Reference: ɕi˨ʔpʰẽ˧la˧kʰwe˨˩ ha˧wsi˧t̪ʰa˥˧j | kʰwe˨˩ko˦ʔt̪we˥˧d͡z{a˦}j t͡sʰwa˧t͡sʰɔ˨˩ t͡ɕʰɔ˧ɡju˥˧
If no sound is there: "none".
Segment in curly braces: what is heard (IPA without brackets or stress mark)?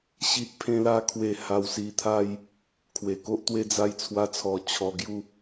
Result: a˦